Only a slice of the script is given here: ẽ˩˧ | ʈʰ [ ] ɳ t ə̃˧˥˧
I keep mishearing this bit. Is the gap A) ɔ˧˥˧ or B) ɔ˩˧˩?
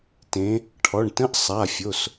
B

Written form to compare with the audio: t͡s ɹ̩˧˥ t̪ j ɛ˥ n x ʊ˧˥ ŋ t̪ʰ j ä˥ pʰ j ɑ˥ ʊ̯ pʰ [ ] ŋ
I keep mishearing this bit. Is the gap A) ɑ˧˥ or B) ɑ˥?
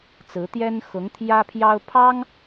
B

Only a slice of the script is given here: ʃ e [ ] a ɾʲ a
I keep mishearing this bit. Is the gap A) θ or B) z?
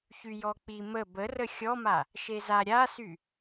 B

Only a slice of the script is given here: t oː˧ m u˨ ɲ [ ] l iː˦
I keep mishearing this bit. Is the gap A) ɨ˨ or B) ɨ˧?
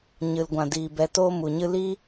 B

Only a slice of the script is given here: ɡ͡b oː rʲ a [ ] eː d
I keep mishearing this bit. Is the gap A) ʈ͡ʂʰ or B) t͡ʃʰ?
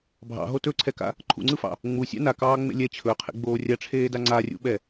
A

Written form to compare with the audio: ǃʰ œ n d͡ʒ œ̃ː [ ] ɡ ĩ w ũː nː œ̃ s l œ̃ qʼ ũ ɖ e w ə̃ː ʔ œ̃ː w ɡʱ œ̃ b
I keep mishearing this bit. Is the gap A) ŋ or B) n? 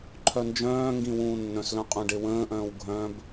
A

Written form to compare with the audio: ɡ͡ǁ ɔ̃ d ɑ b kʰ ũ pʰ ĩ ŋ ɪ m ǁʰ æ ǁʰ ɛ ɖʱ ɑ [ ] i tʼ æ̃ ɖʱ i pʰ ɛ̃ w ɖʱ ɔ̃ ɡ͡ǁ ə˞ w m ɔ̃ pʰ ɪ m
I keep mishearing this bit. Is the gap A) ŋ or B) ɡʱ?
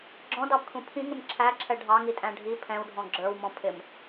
A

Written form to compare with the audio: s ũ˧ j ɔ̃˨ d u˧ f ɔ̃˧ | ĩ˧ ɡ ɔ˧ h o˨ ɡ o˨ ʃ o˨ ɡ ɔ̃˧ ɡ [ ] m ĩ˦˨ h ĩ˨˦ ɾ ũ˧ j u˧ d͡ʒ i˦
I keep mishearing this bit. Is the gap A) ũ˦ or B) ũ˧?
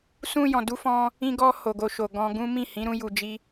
A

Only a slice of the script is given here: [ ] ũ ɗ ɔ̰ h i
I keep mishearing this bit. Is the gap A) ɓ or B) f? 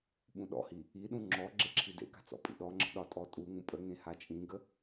A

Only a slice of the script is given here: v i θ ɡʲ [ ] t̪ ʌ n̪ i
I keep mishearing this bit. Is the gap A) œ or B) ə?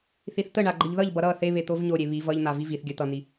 A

